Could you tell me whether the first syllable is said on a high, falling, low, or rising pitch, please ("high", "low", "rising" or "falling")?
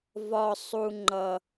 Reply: high